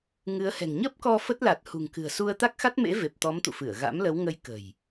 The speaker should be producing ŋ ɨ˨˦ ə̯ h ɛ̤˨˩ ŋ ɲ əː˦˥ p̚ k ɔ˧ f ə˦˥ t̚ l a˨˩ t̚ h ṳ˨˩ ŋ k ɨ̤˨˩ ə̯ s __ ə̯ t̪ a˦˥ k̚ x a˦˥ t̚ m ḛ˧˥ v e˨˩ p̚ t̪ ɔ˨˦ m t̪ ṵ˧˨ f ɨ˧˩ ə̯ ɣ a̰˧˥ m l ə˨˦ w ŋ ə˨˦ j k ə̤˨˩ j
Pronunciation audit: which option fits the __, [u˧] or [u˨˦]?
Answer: u˧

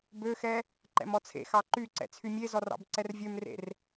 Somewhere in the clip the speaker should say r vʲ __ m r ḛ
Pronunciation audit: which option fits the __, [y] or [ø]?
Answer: ø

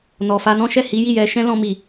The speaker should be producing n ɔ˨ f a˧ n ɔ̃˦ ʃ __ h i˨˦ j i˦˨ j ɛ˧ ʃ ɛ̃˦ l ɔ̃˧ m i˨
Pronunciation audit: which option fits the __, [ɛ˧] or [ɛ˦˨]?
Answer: ɛ˦˨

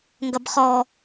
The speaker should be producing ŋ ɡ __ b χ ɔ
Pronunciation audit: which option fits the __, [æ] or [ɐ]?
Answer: ɐ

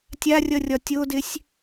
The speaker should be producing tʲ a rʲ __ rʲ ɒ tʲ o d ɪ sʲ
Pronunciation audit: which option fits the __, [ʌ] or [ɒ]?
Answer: ʌ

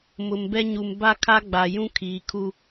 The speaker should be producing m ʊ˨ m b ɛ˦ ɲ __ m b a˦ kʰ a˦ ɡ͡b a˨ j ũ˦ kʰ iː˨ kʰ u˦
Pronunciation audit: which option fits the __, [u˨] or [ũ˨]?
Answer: u˨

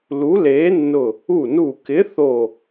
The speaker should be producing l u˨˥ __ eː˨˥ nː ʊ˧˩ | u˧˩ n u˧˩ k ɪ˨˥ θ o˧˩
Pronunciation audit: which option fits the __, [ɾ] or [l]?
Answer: l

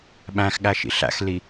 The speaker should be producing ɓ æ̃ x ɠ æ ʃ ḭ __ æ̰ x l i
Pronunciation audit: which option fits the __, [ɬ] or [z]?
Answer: ɬ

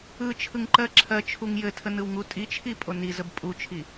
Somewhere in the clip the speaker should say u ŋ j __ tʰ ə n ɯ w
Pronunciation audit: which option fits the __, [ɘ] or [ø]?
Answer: ɘ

